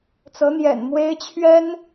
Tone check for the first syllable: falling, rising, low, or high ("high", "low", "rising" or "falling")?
rising